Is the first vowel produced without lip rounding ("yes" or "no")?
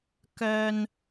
no